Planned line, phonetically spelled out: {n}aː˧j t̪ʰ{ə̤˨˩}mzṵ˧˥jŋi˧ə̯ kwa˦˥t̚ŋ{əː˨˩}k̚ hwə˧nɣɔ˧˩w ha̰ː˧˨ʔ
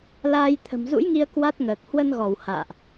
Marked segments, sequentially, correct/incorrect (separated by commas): incorrect, correct, correct